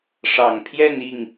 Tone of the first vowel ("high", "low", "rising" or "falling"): low